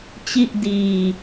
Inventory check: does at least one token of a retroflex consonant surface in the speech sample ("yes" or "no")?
no